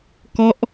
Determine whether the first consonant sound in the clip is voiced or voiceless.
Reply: voiceless